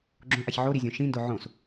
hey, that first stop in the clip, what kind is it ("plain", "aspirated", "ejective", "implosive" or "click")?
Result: click